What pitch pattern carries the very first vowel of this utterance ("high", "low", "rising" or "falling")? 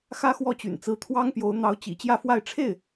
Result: high